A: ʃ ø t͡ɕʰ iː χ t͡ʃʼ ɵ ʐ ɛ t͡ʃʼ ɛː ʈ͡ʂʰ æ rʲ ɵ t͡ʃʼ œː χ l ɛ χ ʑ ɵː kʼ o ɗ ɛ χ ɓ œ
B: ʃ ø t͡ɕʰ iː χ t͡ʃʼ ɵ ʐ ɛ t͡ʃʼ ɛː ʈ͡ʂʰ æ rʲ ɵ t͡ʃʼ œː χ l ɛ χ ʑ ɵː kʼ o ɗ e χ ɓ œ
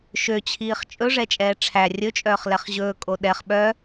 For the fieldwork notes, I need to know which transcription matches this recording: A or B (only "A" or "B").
A